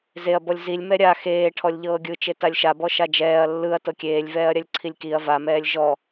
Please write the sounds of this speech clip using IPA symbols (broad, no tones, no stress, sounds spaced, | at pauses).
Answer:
z e ɐ̯ b ɔ lʲ z i lʲ m ɛ ɾʲ a x eː ʈʰ ɔ lʲ ʎ ɤː ɡʲ ɯ t͡ʃ e t a lʲ ʃ a b ɔ ʃ a d͡ʒ ɛː ɐ̯ lː ɯ ɐ̯ t ɤ kʲ eː lʲ v ɛː ɐ̯ ɾʲ a lʲ ǀʰ i lʲ k i ɐ̯ v a m ɛː lʲ ʒ ɔ